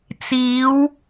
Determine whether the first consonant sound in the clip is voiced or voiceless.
voiceless